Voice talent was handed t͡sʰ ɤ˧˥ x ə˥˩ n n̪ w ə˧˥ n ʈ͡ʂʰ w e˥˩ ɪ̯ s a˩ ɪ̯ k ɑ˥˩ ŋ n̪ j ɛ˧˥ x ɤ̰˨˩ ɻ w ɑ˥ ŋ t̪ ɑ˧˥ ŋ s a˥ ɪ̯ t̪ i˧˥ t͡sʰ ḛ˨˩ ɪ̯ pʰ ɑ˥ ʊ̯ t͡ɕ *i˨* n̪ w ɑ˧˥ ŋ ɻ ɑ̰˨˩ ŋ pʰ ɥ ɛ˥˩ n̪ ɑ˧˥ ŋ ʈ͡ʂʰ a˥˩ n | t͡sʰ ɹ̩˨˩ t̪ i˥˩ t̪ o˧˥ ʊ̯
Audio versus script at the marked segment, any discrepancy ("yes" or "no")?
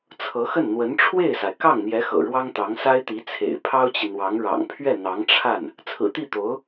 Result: no